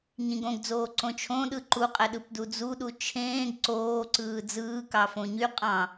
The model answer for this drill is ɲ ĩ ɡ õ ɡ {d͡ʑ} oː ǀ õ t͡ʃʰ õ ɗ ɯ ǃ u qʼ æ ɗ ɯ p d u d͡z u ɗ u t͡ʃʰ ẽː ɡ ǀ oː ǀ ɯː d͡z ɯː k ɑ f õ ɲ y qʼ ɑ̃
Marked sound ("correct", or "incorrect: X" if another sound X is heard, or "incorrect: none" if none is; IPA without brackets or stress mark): incorrect: d͡z